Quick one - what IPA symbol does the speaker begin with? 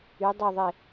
y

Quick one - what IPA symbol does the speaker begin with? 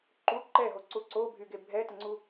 ǃ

